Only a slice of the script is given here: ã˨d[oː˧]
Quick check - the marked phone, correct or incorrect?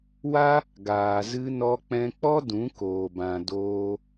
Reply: correct